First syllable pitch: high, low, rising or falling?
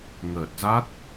low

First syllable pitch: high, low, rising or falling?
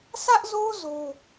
high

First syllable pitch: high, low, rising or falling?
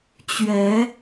rising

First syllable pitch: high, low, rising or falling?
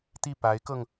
falling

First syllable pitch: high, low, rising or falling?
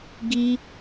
high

